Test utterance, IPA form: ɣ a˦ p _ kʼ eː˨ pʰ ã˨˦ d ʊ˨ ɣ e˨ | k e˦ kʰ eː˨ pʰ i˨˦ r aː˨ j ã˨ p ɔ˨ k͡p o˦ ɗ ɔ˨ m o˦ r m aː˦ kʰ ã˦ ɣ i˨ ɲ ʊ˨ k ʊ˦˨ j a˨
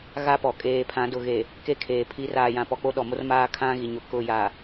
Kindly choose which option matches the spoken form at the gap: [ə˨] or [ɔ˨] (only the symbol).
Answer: ɔ˨